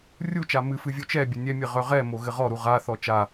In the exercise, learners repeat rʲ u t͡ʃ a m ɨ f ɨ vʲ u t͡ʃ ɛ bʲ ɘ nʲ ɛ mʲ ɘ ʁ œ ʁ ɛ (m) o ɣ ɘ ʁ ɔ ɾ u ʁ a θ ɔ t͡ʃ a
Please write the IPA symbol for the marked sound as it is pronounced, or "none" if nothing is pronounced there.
m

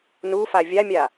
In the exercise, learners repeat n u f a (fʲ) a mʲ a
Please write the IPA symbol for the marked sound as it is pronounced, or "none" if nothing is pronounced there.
vʲ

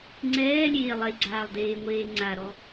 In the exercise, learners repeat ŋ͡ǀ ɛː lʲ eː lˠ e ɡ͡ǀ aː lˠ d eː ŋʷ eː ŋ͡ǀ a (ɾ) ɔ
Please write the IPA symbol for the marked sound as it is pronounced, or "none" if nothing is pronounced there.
ɾ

